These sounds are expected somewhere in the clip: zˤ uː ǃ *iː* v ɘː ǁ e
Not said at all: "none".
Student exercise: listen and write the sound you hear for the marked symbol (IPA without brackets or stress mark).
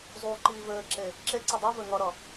iː